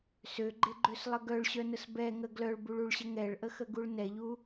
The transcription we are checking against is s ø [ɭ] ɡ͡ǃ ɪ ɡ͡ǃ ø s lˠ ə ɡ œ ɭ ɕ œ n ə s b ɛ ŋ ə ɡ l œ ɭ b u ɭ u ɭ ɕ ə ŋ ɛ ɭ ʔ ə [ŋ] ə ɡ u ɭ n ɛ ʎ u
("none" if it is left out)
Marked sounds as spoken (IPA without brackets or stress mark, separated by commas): none, x